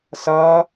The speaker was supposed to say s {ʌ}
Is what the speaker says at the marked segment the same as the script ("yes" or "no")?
yes